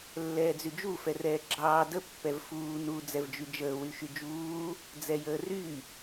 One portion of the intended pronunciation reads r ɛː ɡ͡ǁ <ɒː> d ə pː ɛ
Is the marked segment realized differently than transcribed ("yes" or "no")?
yes